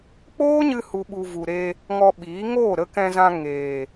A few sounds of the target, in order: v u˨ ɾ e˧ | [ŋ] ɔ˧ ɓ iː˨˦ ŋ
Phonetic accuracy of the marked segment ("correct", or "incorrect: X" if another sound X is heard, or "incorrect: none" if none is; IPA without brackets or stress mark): correct